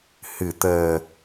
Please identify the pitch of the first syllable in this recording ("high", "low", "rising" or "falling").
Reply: low